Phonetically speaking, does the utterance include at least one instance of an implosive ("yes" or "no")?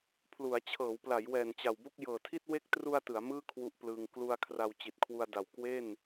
no